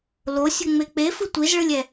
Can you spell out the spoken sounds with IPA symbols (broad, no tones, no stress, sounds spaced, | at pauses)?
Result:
l o sʲ u ŋ͡m e k͡p e f ɯ tʷ i z ɭ ɯ lʲ ɛ